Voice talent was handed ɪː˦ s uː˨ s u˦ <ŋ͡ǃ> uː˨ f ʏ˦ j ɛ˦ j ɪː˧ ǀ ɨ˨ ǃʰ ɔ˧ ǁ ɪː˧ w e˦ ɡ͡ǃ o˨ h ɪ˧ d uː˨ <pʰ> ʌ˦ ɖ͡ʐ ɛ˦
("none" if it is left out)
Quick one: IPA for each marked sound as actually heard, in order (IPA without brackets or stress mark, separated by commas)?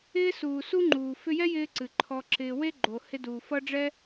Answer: ŋ͡ǃ, f